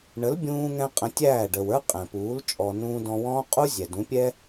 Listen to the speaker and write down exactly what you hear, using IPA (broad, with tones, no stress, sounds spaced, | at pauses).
ɳ ə˨˦ l bʲ ũː˧ ŋ ɛ̃˧ qʼ ə̃˧ tʲ æː˦˨ ɖ ə˨ w ə˞˦ qʼ ɛ̃˨ p uː˨˦ l t͡ʃʼ ɔ˨ n ũː˧ d ɔ̃˧ w ɔ̃ː˦ qʼ u˦ zʲ ɛ˨ d ũ˨˦ pʲ ɛ˦